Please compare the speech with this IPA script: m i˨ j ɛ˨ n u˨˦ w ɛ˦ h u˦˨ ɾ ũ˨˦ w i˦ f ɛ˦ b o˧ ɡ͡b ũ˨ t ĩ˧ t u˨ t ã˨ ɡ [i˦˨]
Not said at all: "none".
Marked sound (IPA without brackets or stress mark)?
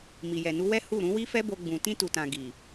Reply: i˨